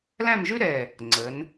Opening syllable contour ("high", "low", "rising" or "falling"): falling